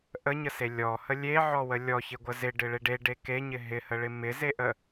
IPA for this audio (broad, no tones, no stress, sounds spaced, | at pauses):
ʔ ə ɲ ə s e lʲ ɔ h ə lʲ e ʕ ɔ w ə lʲ ɔ ç ɪ ɡʷ ə z ɪ ɖ ɪ ɭ e ɖ e ɖ e k e ɲ ɪ ɦ ɪ h ə ɭ ɪ m ɪ z e ʔ ə